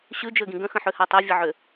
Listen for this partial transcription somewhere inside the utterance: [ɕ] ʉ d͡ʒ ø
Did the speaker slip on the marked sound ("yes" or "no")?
no